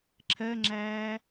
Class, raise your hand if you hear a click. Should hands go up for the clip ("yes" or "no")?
yes